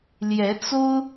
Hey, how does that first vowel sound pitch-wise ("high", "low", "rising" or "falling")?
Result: rising